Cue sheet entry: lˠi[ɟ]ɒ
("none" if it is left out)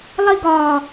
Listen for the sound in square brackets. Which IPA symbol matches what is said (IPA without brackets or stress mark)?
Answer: ɡ